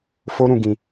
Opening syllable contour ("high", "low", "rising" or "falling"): high